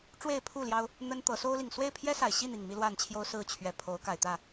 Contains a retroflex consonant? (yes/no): yes